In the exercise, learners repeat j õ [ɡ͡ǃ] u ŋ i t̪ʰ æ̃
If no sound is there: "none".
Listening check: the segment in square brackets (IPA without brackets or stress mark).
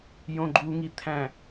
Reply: ɡ͡ǃ